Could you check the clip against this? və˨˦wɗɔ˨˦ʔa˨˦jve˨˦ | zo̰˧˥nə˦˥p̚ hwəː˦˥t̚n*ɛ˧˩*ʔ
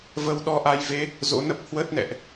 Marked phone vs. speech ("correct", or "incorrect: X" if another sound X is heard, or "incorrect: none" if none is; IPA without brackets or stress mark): incorrect: ɛ̰˧˨